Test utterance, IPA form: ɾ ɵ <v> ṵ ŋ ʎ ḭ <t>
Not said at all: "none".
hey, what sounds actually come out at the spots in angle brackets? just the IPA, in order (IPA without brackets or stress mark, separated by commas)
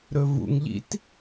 v, t